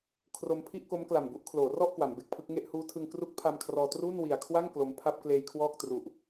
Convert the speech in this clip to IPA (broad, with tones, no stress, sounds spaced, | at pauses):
kʰ r o˧ m pʰ i˥˩ ʔ k o˦˥ m k l a˨˩ m b u˥˩ ʔ kʰ l oː˩˦ r ɔ˥˩ ʔ k w a˩˦ m b e˨˩ k̚ pʰ ɯ˥˩ k̚ ŋ e˥˩ ʔ h uː˦˥ tʰ ɯ˧ ŋ k r u˦˥ k̚ pʰ a˧ m kʰ r ɔː˧ t r uː˥˩ n w i˨˩ a̯ kʰ w a˥˩ ŋ k l o˧ m pʰ a˥˩ p̚ k l eː˧ j kʰ w ɔː˥˩ k̚ t r u˨˩ ʔ